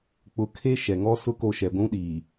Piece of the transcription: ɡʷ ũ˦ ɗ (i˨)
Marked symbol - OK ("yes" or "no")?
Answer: no